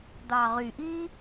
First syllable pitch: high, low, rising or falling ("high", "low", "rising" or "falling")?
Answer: low